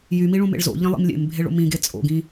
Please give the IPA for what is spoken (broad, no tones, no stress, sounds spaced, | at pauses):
j y m i ɭ ũ m ḛ ɭ z o̰ ʎ ĩ lˠ ḭ m lʲ ḛ m bʱ e ɭ o̰ m ĩ ɡ e t͡sʼ o̰ ɡ ĩ